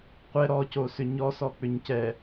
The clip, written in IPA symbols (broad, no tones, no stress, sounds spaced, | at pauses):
qʷ ɛ ɾ ɔ c o s ʏ ɲ ɔ s ɔ k͡p ʏ ɲ c ɛ